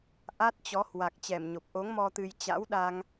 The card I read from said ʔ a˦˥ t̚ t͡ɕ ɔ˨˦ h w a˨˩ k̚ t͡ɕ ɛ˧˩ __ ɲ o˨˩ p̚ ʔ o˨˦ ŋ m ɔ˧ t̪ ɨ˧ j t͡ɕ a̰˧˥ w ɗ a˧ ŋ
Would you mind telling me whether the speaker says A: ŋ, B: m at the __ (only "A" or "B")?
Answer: B